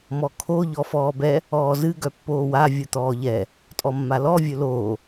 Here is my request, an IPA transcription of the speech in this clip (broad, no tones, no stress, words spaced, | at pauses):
mɔkʰo ʎɔfɔːbɛ | ɔːzɨ ɡœpːoːwa vʲɯt̪ɔːʎɛ | tʼɔmːalɔ vʲɵloː